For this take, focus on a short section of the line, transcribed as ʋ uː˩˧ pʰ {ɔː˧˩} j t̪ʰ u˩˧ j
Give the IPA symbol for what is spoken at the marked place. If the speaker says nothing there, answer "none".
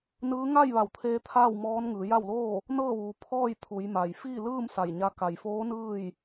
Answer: ɔː˥˨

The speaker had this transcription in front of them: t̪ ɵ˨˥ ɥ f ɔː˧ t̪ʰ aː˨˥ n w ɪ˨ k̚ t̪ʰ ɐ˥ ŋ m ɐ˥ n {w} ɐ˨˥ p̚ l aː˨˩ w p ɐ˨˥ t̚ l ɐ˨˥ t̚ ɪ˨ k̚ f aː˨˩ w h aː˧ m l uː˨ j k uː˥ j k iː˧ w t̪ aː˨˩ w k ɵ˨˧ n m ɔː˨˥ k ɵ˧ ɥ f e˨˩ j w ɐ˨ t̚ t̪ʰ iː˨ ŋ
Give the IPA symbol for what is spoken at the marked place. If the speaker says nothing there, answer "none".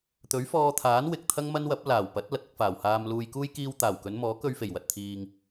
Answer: w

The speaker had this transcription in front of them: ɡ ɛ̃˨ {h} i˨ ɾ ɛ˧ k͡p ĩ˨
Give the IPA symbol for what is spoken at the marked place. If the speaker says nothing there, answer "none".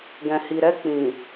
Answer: h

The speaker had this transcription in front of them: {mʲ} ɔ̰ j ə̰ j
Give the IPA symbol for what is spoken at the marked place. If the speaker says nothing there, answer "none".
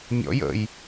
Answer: mʲ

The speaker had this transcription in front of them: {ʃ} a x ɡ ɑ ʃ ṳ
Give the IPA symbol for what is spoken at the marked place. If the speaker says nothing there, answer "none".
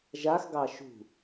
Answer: ʒ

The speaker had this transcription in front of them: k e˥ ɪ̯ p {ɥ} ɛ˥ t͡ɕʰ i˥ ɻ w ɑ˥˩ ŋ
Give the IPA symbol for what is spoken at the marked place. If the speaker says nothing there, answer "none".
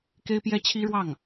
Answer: j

